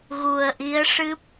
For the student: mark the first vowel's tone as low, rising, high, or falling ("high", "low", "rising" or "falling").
low